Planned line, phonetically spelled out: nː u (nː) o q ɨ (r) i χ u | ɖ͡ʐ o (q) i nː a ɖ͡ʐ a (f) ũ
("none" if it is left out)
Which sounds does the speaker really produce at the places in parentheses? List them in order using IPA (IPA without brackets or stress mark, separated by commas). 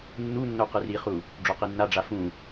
nː, r, q, f